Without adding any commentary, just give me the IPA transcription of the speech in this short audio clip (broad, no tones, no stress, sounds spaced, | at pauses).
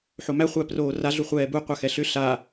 ħ o m æ χʷ æ p r oː r a ɮ u χʷ ɛː b u qʷ a x ɛ ɬ ʏ ɬ a